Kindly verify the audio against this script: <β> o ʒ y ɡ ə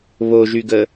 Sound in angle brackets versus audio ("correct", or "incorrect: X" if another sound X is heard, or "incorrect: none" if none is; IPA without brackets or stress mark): correct